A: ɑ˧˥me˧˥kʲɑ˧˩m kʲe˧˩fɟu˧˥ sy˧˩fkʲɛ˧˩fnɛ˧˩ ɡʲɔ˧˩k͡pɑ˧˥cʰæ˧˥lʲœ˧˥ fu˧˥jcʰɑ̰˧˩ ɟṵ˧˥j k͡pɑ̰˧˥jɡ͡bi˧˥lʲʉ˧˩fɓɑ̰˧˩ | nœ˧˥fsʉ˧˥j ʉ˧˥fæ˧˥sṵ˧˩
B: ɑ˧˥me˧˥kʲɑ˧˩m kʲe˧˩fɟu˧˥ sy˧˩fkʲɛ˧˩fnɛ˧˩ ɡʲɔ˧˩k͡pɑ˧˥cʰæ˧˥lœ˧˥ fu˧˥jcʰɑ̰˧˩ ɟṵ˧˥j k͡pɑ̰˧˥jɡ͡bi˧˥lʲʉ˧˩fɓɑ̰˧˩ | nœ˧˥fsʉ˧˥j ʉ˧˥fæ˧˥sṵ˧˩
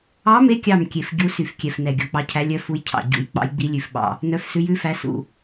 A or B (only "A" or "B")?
A